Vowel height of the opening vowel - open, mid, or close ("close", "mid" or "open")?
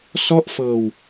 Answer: mid